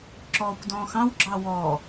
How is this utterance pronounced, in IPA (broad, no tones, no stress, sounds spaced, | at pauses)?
ǁ ɔː kʷ d ɔ̃ː x ɑ̃ w ɡ͡ǁ ɑ w ɔ